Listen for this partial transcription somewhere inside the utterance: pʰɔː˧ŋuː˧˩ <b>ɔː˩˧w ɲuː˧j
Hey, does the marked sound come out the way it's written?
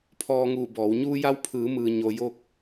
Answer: yes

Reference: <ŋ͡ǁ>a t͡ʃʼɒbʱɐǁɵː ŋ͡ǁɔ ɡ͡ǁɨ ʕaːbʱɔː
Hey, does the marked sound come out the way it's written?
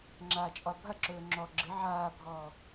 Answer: yes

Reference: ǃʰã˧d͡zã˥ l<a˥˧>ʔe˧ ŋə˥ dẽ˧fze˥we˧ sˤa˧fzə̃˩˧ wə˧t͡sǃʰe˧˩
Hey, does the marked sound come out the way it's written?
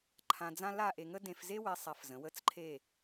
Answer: yes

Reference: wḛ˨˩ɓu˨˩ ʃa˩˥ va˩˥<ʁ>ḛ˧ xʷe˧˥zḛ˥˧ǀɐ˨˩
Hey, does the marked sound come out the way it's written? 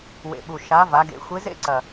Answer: no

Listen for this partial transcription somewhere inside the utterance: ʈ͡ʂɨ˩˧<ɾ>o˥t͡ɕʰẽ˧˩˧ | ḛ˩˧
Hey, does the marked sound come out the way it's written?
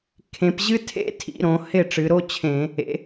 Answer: yes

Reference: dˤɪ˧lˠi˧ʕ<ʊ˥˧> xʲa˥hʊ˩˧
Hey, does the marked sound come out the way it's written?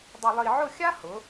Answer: yes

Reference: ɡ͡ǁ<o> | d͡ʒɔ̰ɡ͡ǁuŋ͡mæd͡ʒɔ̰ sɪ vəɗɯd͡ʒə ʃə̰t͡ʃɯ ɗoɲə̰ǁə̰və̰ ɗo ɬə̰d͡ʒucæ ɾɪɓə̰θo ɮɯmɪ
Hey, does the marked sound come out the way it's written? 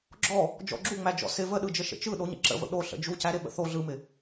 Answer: no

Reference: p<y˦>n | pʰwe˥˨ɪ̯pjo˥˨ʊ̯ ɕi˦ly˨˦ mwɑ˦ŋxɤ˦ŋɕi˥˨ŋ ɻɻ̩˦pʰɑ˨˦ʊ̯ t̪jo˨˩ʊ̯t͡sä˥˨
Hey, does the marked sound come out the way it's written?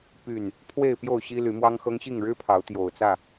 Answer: no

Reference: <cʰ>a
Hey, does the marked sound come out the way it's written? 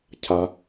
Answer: yes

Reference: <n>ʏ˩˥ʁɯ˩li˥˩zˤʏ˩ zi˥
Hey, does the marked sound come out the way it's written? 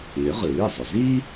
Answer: yes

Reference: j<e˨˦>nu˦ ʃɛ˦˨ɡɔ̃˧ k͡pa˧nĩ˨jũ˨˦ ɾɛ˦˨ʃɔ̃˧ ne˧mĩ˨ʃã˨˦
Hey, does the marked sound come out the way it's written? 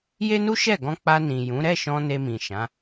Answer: no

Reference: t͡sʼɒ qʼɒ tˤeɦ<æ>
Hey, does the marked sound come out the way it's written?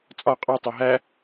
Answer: yes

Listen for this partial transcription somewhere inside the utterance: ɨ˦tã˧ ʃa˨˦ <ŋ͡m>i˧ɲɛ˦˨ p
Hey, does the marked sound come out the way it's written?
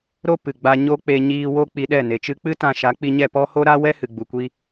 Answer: no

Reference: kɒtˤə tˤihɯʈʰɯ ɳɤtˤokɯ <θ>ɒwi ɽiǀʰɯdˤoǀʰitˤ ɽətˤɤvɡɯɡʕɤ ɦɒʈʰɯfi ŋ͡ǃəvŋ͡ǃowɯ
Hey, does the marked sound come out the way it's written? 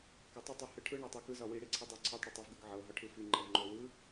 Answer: no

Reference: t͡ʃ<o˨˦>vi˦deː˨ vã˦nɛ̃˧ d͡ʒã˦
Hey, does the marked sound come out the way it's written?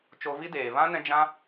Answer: no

